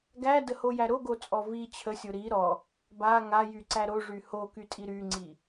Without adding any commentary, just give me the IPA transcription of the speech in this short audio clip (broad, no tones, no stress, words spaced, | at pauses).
ɡædəhojæ ɾoɡot͡sʼɔ vi t͡ɕʰəsʲo ɾi ɾɔ | ba ŋajyǀæ ɾoʐy hokytʼi ɾyŋ͡ǀi